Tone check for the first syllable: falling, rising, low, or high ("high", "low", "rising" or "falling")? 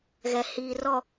low